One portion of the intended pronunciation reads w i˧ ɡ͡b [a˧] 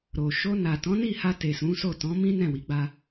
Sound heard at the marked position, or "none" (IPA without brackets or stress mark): a˦